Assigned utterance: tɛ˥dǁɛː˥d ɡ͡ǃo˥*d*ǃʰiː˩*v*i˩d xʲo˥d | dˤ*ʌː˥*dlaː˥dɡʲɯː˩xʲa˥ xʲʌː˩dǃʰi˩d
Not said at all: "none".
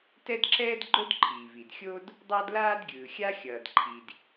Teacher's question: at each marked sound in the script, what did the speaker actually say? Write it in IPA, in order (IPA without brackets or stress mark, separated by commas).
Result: d, v, ʌː˥